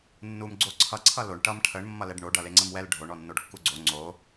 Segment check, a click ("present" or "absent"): present